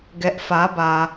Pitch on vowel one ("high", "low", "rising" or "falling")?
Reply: low